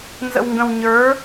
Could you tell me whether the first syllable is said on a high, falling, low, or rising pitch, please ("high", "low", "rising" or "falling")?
low